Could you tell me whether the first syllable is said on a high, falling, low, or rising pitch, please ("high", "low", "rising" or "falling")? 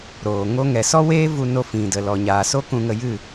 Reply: low